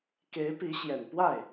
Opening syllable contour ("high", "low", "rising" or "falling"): rising